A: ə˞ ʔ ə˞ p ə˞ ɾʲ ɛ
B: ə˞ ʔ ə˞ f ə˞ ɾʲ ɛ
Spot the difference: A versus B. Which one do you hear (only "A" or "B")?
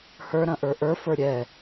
B